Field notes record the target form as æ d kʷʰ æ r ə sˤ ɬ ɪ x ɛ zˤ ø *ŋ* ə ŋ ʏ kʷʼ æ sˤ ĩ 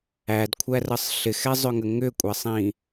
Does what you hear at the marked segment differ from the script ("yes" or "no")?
no